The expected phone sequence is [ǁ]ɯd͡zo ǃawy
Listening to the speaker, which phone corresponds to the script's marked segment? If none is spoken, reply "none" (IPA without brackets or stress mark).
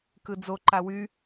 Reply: k